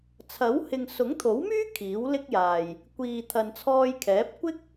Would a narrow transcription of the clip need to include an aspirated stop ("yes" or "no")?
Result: yes